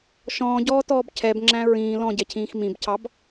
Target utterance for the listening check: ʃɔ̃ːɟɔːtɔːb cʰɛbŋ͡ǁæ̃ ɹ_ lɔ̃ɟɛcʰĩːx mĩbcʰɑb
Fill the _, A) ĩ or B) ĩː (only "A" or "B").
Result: B